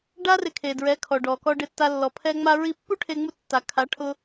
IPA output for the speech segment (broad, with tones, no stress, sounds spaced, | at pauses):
ɖ a˦ r ɪ˧ kʰ e˨ d ɹ ɛ˨˦ kʰ ɔ˨ ɖ ɔ˨ k ɔ˧ ɖ ɪ˧ tː a˧ lː ɔ˨ pʰ ɛ˦ ŋ͡m a˧ ɹ i˧ pː u˦ ʈʰ e˧ ŋ͡m u˧ tː a˨ kʰ a˨˦ ʈʰ ʊ˧